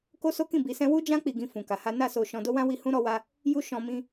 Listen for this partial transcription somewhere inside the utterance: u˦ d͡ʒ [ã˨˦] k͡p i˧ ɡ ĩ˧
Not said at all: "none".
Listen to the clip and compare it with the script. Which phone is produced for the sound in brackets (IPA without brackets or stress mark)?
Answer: ã˦